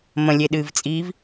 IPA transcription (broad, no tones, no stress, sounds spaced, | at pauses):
m ə̃ lʲ e ɗ ɨː v t͡sʼ iː v